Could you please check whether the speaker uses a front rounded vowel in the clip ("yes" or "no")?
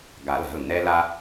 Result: no